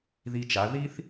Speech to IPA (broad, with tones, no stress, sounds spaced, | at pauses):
ð i˧ t͡ʃ a˩˧ ð i˥ θ